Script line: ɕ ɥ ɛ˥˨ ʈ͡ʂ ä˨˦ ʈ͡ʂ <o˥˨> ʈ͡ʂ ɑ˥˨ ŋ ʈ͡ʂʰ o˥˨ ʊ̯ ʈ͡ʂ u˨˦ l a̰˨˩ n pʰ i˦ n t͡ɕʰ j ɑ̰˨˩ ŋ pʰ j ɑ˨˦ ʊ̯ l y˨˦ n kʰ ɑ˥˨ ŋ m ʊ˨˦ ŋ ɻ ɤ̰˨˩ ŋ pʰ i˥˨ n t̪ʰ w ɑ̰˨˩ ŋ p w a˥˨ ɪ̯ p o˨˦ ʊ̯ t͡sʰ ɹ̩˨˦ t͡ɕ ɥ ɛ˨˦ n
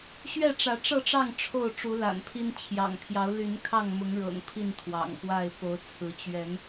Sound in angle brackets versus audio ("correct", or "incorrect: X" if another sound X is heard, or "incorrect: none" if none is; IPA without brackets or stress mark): incorrect: ɤ˥˨